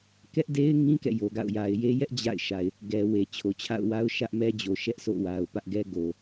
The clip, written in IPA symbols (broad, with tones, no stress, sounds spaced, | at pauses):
k ɛ˦ ʔ d e˦ ɪ̯ ŋ ĩ˦ k ɛ̰˦˨ j o˨ ɡ a̰˦˨ ʊ̯ j a˨ ɪ̯ j e˦ j ɛ˦ ʔ d͡ʑ a̰˦˨ ɪ̯ ʃ a˨ ɪ̯ | ɡ ɛ˨ w e˨ t͡ɕʰ o˨ t͡ɕʰ a̰˦˨ ʊ̯ w a˦ ʊ̯ ʃ ä˦ ʔ m ɛ˦ d͡ʑ o˨ ʃ ɛ˦ ʔ s o̰˦˨ w a˨ ʊ̯ p ä˦ ʔ ɡ ɛ˦ ɡ o˨